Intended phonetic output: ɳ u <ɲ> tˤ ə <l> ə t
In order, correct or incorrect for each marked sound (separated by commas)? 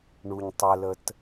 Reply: correct, correct